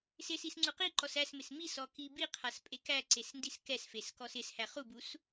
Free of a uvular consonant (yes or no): no